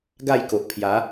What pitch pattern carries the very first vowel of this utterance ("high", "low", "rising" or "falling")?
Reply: falling